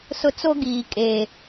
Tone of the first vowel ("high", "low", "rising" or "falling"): high